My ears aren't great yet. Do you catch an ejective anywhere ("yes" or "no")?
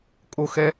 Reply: yes